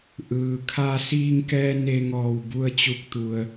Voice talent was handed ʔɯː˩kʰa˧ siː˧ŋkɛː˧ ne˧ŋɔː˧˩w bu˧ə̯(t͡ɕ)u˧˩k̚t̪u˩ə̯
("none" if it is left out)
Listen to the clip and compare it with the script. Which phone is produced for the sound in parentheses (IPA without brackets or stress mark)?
t͡ɕ